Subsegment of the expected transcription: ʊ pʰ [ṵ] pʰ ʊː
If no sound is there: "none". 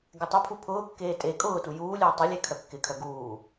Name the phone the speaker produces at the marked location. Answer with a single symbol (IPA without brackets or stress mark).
u